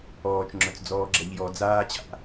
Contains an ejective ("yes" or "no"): no